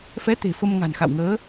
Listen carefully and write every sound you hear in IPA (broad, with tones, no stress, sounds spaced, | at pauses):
f ɛ˨˦ t̪ e̤˨˩ f ə˧ m ŋ a̤˨˩ n x a̰˧˨ w ŋ əː˨˦